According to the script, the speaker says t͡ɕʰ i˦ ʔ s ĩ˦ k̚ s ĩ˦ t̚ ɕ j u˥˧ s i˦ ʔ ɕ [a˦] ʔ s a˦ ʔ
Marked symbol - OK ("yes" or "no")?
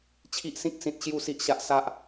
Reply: yes